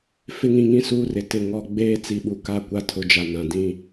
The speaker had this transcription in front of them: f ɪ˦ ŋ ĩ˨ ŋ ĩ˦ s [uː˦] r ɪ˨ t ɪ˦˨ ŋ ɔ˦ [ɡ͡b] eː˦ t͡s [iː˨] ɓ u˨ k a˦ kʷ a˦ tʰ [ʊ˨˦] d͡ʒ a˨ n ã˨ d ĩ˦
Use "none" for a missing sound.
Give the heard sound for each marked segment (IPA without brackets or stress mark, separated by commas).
uː˦, ɡ͡b, i˨, ʊ˨˦